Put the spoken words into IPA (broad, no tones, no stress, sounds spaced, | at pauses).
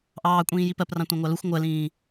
ʔ ɑː kʷʼ ĩː j i p ɜ p r ɑ̃ tʷ ɑ̃ ŋʷ ɑ l u xʷ ŋʷ ɜ l ĩː